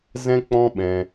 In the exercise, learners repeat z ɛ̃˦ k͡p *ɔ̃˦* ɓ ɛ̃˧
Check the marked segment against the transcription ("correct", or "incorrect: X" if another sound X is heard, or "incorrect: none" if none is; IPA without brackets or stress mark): correct